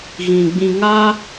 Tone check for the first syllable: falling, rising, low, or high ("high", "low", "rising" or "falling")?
low